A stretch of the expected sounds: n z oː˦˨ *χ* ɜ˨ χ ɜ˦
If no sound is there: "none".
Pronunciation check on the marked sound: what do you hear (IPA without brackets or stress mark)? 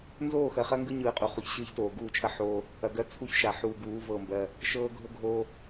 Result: x